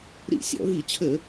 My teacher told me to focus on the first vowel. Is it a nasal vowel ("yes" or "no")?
no